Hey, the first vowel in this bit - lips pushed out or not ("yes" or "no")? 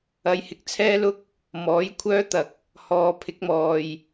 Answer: no